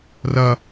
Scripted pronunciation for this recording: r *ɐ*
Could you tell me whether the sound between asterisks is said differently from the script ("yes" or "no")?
no